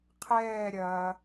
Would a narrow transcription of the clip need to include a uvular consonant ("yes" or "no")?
yes